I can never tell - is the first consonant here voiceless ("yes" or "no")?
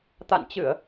yes